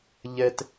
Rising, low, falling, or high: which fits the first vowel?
high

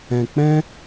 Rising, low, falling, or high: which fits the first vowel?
low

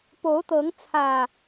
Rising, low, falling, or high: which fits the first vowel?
rising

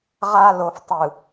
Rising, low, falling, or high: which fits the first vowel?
low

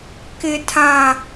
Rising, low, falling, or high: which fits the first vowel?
low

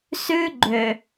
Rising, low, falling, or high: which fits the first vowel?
high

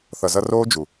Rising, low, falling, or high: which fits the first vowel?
low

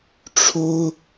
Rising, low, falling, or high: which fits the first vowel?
high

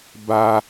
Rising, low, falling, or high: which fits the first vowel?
high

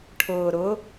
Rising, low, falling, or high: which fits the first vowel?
low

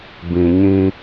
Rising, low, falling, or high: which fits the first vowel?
low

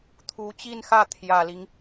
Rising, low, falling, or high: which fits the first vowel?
rising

